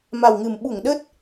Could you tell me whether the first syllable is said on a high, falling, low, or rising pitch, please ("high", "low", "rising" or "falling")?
low